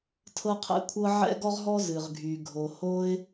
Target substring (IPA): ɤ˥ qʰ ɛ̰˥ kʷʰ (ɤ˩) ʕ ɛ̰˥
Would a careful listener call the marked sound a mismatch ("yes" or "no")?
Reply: yes